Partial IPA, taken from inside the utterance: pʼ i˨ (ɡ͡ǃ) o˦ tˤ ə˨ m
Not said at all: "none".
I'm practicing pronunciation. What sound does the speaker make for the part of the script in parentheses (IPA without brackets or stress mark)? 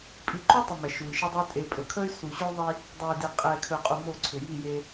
ǃ